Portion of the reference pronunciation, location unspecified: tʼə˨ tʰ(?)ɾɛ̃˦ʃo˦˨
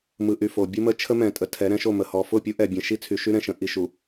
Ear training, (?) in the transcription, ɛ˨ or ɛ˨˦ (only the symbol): ɛ˨˦